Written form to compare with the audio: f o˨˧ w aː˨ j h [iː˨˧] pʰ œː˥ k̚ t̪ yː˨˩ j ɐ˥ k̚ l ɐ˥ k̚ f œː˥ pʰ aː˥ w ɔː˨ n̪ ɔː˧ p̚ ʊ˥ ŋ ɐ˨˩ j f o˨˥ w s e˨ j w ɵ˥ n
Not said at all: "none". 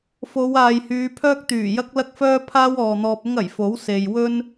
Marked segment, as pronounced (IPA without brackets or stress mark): yː˨˧